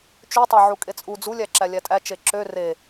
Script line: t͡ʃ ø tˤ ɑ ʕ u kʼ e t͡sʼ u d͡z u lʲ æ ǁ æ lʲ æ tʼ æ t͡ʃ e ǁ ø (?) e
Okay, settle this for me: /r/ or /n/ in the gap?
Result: r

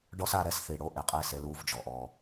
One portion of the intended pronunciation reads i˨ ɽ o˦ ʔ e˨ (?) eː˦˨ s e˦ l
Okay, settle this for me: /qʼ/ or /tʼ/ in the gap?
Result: qʼ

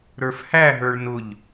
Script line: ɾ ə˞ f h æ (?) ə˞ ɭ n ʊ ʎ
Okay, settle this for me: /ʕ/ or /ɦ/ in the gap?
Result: ɦ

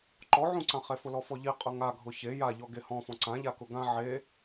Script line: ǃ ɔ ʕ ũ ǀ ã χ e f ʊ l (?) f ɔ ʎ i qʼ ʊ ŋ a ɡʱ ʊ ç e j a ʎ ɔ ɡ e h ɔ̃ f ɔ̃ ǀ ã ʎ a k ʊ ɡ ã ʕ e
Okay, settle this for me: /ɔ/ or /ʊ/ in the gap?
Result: ɔ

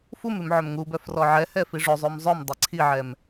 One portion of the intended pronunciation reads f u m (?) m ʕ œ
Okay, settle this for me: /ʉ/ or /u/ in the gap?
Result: ʉ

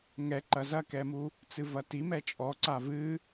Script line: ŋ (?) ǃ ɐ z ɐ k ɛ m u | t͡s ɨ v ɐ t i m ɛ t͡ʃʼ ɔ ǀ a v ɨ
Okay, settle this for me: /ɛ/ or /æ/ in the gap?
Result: ɛ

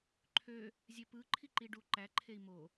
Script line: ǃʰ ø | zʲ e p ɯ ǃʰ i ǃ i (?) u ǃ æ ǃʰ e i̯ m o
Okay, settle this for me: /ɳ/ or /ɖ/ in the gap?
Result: ɖ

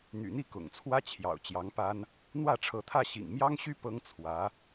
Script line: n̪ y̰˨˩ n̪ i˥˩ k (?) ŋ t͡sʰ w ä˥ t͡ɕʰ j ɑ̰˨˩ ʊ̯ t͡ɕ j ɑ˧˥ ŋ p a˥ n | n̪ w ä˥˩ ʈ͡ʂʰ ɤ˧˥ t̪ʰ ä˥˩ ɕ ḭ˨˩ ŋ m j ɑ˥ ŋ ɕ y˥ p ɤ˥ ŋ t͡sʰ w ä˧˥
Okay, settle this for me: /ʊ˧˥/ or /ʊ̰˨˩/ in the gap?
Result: ʊ̰˨˩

